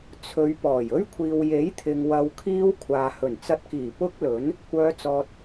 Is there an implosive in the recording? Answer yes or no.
no